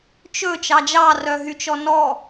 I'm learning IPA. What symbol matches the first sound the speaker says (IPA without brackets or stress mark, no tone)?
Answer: t͡ʃ